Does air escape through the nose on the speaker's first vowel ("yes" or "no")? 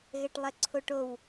no